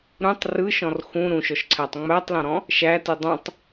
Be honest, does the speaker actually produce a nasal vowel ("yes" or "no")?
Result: yes